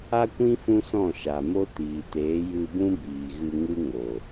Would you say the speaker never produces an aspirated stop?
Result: yes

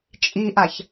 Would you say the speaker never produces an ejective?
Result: no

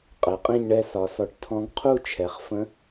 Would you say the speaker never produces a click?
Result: yes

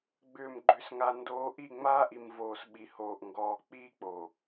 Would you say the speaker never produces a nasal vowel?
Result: yes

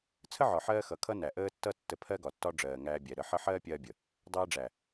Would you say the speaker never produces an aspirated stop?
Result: no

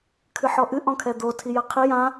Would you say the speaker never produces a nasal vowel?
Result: no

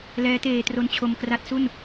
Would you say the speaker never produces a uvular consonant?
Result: yes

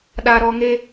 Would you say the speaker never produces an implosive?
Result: no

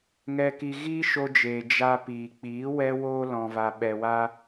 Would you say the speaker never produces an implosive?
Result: no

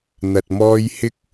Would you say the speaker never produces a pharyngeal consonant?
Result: yes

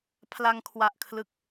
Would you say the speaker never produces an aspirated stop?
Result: no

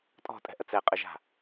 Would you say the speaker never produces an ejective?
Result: no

